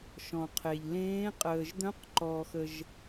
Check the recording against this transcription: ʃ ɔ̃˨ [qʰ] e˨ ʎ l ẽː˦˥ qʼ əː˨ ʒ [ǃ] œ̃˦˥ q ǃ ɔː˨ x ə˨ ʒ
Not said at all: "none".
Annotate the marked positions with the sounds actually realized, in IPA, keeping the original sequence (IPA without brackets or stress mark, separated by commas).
qʰ, d̪